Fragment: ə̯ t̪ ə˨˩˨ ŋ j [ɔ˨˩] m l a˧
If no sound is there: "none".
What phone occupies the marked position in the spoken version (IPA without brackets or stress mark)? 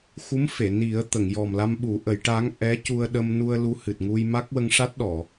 ɔ˨˩